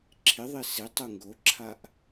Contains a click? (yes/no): yes